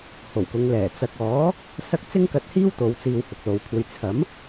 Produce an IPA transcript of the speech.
h o˨˩ w k ʊ˨˧ ŋ l ɛː˨˩ t͡s ɐ˨ k̚ ɔː˨˥ | s ɐ˥ k̚ t͡s ɪ˥ ŋ k ɐ˧ t̚ h iː˥ w t̪ o˨˧ w t͡s iː˧ w h ʊ˨ k̚ l o˨˧ w kʷʰ ɐ˧ j t͡sʰ ɐ˨˥ m

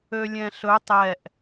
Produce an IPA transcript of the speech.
ø lʲ ɛ̃ ɬ ɵ tˤ ɛ ʔ

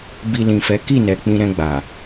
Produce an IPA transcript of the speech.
b i˧ l ĩ˨ f ɛ˨˦ k i˦˨ n ɛ˨ k͡p ĩ˧ ɾ ɛ̃˧ ɡ͡b a˨

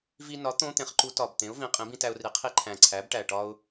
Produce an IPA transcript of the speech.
v i˧ n ɒ˩˥ t̪ õ˧˥ t̪ ẽ˩˥ χ ǃ u˧˥ t ɒ˨˩ b t̪ ẽ˩˥ ʊ̯ v ĩ˩˥ qʼ ĩ˩˥ b ĩ˧ t æ˧ ʊ̯ r i˩˥ qʰ i˧ ǃʰ æ̃˨˩ ǀʰ æ˩˥ b ʈ æ˨˩ ʈ ɒ˧ ʊ̯

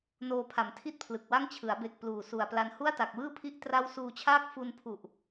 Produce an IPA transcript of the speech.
n oː˧ pʰ a˩˦ m tʰ i˥˩ t̚ pʰ l ɯ˨˩ k̚ w a˥˩ ŋ t͡ɕʰ ɯ˩˦ a̯ b e˨˩ k̚ p l uː˨˩ s u˨˩ a̯ p l a˧ n h u˥˩ a̯ t a˨˩ k̚ w ɯː˥˩ pʰ i˥˩ ʔ t r a˦˥ w s uː˧ t͡ɕʰ aː˥˩ k̚ f u˧ n pʰ u˨˩ ʔ

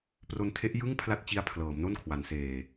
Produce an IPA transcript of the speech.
p r o˧ n tʰ e˦˥ ʔ j ɯ˥˩ ŋ pʰ l a˥˩ t̚ t͡ɕ i˦˥ a̯ pʰ l ɤː˩˦ m n o˥˩ n kʰ w a˩˦ n s eː˨˩

